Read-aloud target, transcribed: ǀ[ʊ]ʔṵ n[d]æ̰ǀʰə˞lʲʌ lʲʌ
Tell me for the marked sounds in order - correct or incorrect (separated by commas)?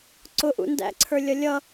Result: correct, correct